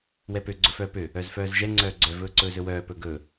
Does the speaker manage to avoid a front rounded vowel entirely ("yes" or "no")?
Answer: no